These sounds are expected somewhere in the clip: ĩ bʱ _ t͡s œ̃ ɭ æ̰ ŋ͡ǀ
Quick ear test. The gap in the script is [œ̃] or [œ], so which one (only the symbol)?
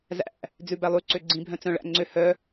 œ̃